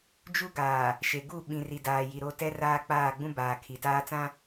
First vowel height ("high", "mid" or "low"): high